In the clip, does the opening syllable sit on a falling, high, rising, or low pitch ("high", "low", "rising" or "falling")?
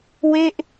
falling